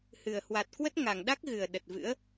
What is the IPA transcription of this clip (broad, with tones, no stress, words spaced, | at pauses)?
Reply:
hɨ˨˩ə̯hwa˨˩t̚ kwə˦˥t̚ŋa˨˩ŋɗa˦˥k̚ɣɨ˨˩ə̯ ɗə˨˩t̚vɨ̰˧˥ə̯